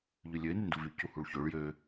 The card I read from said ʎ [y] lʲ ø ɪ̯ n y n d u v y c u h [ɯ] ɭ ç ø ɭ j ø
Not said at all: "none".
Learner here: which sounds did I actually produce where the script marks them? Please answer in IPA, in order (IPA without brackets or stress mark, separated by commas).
y, u